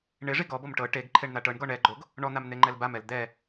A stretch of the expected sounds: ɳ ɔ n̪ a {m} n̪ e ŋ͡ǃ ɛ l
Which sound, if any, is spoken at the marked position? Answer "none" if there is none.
m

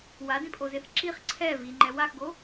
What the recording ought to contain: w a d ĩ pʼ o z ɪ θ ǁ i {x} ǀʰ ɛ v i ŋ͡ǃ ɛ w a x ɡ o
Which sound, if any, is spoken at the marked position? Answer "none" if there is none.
χ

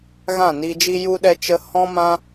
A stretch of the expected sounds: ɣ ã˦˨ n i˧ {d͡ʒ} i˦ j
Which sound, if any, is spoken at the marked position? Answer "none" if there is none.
d͡ʒ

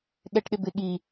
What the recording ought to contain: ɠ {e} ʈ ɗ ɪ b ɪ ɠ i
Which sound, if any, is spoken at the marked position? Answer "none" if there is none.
ɛ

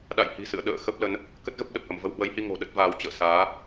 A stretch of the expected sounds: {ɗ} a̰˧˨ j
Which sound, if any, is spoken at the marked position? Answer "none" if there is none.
ɗ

